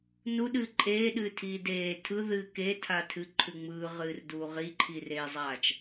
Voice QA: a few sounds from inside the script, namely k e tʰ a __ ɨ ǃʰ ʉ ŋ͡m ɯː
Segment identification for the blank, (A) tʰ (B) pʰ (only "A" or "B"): A